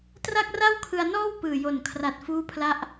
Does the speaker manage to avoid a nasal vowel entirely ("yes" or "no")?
yes